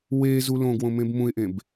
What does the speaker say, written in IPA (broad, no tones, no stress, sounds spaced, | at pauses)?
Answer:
w e z u l õ ɡ w õ m ẽ b m ũ ɪ̯ ʔ ẽ b